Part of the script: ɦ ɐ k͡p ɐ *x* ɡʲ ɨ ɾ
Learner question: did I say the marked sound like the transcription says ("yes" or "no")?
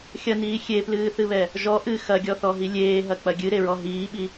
no